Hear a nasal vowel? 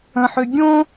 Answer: yes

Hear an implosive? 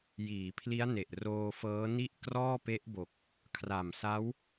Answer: no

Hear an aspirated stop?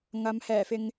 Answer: no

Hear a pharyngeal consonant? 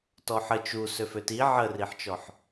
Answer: yes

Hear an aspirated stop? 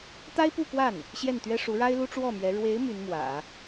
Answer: no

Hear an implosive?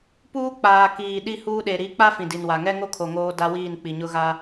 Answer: yes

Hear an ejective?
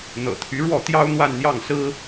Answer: no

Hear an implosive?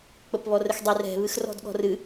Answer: yes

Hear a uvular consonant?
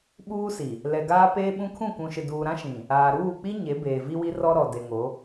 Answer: no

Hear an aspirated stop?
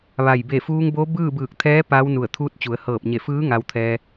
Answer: yes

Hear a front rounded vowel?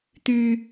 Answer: yes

